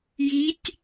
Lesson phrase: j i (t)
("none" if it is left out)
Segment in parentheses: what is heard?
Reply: tʲ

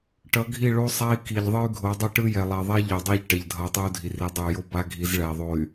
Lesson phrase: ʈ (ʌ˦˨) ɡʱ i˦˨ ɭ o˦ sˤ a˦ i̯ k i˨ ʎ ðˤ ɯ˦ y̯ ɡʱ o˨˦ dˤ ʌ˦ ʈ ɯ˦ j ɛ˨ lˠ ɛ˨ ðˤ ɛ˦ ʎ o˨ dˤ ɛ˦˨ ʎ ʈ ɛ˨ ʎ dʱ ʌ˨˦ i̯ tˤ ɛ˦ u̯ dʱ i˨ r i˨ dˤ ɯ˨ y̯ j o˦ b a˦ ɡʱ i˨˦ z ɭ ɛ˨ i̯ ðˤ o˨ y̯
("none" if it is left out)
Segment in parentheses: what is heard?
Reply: ʌ˨˦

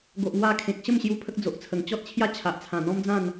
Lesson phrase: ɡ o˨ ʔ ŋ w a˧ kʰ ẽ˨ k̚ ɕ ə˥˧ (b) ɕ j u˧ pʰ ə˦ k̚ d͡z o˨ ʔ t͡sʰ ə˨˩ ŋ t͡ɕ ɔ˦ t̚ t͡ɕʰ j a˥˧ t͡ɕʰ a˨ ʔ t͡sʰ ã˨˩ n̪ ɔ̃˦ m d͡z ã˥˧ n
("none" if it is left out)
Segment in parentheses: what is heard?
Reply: m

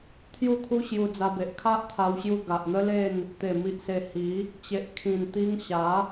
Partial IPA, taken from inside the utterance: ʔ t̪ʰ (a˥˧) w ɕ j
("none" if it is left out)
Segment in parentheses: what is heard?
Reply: a˧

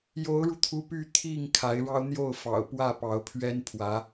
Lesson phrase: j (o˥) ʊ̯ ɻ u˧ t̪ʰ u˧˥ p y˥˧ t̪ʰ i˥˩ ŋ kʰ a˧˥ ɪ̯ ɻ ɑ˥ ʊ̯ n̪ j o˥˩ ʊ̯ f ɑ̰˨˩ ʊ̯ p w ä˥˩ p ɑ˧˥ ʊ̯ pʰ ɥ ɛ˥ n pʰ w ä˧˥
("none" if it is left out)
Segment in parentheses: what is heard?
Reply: o˧˥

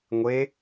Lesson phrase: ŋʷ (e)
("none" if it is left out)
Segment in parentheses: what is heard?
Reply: e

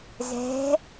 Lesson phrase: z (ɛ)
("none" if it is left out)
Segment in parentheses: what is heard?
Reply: ɛ̤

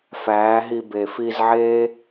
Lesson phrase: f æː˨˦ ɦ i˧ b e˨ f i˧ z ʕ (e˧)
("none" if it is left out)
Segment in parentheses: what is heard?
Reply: e˦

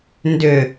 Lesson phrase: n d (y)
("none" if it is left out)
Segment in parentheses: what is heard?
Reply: ʏ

